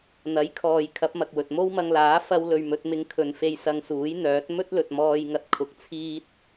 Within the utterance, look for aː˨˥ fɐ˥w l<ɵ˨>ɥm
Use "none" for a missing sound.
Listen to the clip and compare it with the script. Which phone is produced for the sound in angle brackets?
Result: ɵ˧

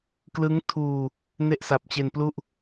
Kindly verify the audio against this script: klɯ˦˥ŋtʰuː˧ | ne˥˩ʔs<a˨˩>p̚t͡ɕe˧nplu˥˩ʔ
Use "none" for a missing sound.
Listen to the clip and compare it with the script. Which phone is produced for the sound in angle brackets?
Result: a˨˩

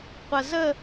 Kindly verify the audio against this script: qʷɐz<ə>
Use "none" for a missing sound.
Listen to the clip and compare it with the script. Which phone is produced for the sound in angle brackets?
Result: ə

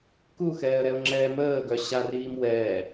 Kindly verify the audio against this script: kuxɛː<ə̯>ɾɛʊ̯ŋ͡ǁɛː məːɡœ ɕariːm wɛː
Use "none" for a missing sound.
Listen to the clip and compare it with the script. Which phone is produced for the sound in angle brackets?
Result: ə̯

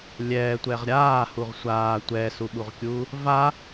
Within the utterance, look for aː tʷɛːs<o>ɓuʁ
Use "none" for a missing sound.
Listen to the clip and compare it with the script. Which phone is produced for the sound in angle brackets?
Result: u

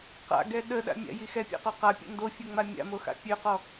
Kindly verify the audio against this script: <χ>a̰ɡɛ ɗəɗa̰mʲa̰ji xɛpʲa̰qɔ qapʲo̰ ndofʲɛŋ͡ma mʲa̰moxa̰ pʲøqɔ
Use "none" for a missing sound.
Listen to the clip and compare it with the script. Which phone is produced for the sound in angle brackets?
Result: q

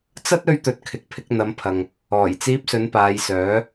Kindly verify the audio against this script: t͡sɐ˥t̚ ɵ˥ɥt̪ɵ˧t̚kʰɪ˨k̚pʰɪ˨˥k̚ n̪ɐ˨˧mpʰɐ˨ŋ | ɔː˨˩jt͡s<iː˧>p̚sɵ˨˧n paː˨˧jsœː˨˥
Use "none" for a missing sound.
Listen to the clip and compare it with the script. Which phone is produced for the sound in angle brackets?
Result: iː˧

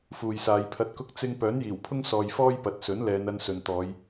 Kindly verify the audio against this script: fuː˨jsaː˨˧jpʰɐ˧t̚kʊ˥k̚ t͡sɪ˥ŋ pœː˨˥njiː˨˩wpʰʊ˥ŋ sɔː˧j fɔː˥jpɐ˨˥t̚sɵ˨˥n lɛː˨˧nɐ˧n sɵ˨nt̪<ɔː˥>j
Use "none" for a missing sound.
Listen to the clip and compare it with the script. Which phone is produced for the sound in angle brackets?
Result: ɔː˨˧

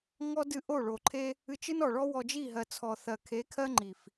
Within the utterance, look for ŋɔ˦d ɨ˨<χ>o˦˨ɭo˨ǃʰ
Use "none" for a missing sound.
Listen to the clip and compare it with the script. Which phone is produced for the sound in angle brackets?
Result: ʔ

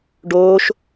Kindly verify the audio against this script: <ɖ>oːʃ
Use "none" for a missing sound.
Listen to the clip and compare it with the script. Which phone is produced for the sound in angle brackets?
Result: ɖ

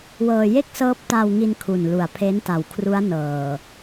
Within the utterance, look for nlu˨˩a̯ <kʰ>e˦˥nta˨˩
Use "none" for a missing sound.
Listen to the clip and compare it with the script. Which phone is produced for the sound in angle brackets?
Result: pʰ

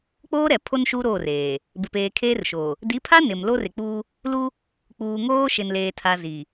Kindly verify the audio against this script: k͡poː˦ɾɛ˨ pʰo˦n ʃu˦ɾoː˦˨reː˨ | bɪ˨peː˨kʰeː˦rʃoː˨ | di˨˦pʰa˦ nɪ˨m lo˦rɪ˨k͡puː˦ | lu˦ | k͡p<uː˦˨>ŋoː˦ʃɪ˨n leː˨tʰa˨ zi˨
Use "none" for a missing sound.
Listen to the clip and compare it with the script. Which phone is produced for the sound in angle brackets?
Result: uː˨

